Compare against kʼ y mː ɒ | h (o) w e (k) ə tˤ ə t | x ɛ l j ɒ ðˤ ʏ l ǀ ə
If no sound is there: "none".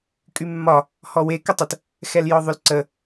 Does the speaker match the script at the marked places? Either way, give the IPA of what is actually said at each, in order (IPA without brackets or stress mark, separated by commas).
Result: ɔ, k